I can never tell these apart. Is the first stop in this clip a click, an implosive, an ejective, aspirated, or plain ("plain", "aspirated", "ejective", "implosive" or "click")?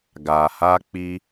plain